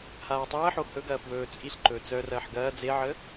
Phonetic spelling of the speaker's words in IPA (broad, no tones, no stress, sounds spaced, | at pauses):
h aː tˤ ɐː ħ o h ɵ ɡ ɐː f w ɵː t͡sʼ i ɬ ǃ ɵː t͡s œ r ɐː ħ ɡ ɐː d͡z e ʕ əː